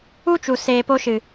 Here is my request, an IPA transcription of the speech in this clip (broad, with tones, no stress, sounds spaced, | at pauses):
u˦ t͡ʃ u˨ s eː˨ p o˧ ʃ ɨ˨